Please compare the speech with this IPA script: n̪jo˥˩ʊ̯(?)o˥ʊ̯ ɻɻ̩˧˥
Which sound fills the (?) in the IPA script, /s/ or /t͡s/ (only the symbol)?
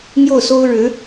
s